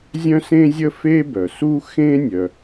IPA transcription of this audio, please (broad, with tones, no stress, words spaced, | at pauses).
zʲœ̃˥sẽ˥zʲə˥ fe˥bœ˩ su˥xẽ˥nʲœ˩